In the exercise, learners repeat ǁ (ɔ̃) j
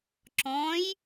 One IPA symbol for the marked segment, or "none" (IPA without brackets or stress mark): ɔ̃